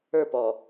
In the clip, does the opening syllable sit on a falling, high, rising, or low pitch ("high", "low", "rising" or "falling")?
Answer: falling